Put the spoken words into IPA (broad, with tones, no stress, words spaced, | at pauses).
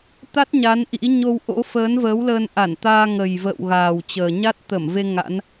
t̪a˦˥t̚ ɲa˨˦nʔḭ˧˥ ɲo˧w ʔo̰˧˥ fəː˨˦nvəː˨˦wləː˧n ʔa˧˩nt̪aː˧ŋə˨˩jvə̰ː˧˨w ɣaː˨˩wt͡ɕəː˨˩ ɲa˦˥t̚t̪ə˧˩mve˧ ŋa̰˧˥n